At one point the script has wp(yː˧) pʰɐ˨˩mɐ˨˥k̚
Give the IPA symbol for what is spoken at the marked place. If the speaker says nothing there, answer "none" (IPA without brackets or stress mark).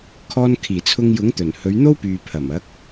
yː˨